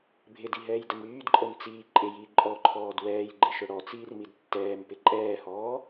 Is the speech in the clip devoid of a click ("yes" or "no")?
no